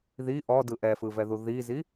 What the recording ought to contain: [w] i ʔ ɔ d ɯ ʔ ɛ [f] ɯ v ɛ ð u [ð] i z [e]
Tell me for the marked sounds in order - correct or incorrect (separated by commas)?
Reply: incorrect, correct, correct, incorrect